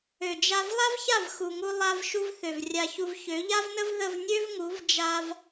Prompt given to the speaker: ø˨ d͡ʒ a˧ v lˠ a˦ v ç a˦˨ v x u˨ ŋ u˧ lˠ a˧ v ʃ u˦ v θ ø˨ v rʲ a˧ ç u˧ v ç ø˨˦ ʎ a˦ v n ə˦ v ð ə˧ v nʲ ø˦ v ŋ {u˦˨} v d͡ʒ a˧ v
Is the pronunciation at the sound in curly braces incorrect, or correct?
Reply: incorrect